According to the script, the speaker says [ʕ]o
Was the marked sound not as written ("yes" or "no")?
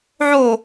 no